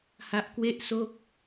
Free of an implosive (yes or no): yes